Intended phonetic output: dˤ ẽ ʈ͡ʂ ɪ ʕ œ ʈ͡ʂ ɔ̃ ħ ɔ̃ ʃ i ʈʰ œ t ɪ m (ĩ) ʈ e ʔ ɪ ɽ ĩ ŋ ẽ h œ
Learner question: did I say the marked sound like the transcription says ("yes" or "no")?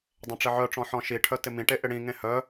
yes